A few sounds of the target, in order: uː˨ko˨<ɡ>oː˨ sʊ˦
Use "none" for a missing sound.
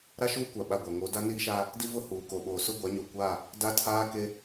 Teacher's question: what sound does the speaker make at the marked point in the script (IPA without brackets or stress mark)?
ɓ